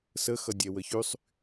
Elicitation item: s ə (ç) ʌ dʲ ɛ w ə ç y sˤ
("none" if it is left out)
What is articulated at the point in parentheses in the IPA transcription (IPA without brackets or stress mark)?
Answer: x